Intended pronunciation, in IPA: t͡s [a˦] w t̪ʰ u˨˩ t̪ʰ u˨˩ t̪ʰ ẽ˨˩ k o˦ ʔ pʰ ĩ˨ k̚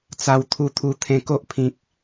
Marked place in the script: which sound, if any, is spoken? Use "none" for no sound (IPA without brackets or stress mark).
a˨˩